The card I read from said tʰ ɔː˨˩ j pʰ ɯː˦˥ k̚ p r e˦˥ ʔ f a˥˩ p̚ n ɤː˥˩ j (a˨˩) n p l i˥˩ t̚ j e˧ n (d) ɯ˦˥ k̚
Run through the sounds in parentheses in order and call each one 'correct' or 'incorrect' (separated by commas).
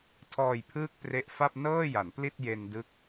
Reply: incorrect, correct